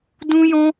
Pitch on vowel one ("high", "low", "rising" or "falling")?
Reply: high